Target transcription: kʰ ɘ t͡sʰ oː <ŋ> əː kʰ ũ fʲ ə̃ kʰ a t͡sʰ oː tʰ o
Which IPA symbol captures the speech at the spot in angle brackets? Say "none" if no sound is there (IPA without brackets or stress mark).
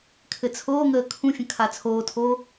ŋ